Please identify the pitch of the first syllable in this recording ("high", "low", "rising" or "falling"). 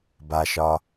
low